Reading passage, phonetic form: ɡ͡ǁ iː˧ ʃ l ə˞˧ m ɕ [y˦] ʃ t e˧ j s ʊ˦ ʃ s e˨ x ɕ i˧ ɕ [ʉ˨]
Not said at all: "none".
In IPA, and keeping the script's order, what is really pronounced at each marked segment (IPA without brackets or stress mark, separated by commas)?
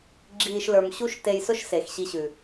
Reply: u˦, ʉ˨